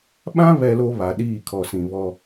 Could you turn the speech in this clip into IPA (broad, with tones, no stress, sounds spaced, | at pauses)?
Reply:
ɓ ã˦ β ɛ˦ l o˦ β a˨ ɗ iː˦˨ kʰ ɔ˨ s ĩ˨ β ɔ˦